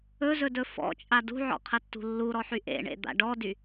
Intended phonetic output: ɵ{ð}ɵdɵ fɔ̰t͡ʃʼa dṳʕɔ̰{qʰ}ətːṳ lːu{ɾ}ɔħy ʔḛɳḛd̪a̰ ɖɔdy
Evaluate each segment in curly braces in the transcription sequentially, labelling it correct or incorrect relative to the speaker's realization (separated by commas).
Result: incorrect, correct, correct